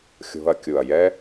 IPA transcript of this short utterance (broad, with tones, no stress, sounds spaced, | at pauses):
xʲ o̤˧ ɐ̯ kʲ u˨ ɐ̯ j ɛ˦